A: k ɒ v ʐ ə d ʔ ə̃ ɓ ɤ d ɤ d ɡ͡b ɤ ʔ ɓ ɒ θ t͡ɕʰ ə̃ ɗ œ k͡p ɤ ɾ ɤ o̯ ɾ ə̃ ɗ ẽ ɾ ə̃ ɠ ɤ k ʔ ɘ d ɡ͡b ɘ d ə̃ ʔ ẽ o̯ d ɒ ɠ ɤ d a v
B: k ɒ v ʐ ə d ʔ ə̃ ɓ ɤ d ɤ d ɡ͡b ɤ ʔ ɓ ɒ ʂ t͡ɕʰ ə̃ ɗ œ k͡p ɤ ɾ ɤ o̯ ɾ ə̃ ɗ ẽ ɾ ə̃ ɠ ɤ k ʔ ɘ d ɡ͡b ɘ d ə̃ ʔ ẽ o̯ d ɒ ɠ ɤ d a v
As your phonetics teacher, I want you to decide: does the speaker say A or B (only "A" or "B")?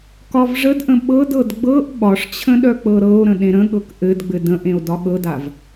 B